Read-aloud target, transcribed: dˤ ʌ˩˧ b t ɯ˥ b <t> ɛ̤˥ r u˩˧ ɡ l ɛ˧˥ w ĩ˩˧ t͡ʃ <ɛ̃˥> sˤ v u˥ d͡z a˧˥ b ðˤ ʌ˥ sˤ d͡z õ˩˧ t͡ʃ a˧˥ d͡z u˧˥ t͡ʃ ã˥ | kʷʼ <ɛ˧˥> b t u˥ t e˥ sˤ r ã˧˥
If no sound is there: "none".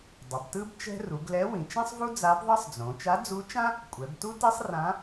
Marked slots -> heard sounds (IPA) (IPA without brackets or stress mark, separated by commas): t͡ʃ, ɛ̃˥, ɛ˩˧